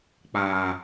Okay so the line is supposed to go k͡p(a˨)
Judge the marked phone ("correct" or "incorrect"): incorrect